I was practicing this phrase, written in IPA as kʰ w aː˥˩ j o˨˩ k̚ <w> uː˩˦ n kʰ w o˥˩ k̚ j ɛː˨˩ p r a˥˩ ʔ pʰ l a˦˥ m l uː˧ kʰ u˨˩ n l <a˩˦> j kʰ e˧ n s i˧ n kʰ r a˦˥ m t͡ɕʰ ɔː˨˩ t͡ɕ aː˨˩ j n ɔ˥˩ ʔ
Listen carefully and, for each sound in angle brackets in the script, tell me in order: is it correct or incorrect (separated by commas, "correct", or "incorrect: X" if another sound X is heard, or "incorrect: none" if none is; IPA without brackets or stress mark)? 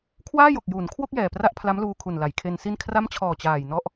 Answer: incorrect: j, correct